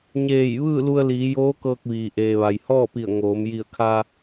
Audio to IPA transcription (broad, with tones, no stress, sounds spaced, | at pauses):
ɲ eː˧˩ j ʋ ɯː˥˨ l u˧ ə̯ l iː˩˧ j oː˧˥ k ɤː˧ k̚ ʋ iː˩ ʔ eː˩ ʋ a˩ j h ɔː˥˨ p i˧˩ ə̯ ŋ oː˩˧ m j i˧˩ ə̯ kʰ a˧